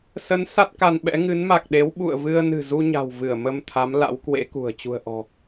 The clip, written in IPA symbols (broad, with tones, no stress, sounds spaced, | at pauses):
s ə˨˦ n s a˦˥ t̚ k a˧ n ɓ ɛ̰˧˥ ŋ ɨ˨˦ n m a˨˩ k̚ ɗ e˨˦ w ɓ ṵ˧˨ ə̯ v ɨ˧ ə̯ n ɨ̤˨˩ z u˧ ɲ a̤˨˩ w v ɨ˧˩ ə̯ m ə˧ m t̪ʰ a˨˦ m l a̰˧˥ w k w ḛ˧˥ k ṳ˨˩ ə̯ t͡ɕ ṳ˨˩ ə̯ ʔ ɔ̤˨˩